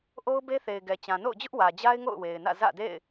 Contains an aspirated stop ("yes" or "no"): no